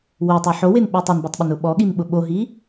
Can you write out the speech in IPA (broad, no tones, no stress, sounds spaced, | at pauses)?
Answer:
w o tˤ o ħ o w e n ɓ e tˤ ɘ n b o tˤ ɓ ʊ n ʊ ɓ ɔ ɠ i n ɓ ʊ ɓ o ɦ i